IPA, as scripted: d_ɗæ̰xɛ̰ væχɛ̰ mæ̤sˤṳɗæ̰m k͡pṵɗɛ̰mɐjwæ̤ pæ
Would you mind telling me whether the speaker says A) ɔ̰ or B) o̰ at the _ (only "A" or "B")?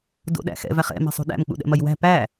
B